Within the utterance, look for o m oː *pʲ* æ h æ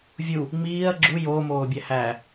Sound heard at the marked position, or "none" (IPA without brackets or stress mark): bʲ